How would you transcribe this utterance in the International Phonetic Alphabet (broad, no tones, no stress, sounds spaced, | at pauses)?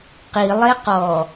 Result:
q i lˠ e q ɔ